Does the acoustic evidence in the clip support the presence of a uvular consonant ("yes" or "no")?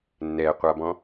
yes